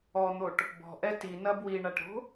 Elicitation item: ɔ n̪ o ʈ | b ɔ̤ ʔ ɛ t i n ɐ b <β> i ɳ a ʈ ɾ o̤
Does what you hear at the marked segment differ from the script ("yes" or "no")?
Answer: yes